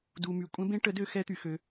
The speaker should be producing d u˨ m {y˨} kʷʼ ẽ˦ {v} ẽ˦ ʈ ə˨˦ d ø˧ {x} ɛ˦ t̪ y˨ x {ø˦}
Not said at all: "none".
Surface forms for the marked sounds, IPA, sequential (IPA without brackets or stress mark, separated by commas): y˨, b, x, ø˧